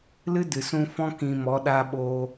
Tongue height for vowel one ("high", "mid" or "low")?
high